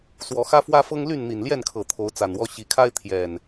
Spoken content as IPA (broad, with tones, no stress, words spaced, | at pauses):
swɔ˨˦xä˦fwä˦fɤ˦ŋ ly˥˨nn̪i˨˩nljɛ˥˨nkʰɤ˨˩ t̪ʰo˨˦ʊ̯t͡sa˨˩nwɔ˦ ɕi˨˩kʰa˦ɪ̯ t̪ʰjɛ˨˩n